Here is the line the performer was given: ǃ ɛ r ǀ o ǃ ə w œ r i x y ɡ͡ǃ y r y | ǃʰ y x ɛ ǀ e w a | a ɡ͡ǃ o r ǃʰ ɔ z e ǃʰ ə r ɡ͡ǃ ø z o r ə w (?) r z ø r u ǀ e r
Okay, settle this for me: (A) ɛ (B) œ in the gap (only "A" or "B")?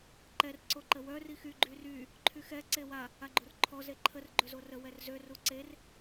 A